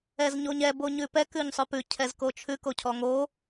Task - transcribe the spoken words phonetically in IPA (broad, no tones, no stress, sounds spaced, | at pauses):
ɛ z ɲ o ɲ ɛ b o ɲ ʉ p ɛ k ʉ ɲ sˤ ʉ p ʉ cʰ ɛ z k o t͡ʃʰ ʉ k o cʰ ɔ ŋ o